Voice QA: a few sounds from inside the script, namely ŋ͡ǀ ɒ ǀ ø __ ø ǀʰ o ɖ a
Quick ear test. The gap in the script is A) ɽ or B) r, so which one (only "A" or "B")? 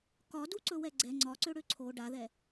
A